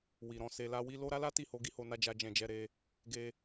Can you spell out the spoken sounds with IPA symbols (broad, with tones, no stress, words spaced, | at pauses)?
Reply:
wi˨ɾɔ̃˧ se˧la˦wi˦ lo˦ ɾa˦la˦ti˦˨ho˧ ɡi˦ho˧na˧d͡ʒa˧ d͡ʒɛ̃˧d͡ʒɛ˧ɾe˧ | ɡe˧